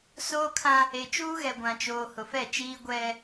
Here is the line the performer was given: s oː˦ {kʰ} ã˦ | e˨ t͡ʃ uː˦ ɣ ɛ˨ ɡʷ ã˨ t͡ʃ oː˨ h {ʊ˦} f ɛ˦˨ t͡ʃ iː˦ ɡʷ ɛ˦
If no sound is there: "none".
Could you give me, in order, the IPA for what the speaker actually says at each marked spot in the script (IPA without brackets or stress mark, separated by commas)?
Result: kʰ, ʊ˨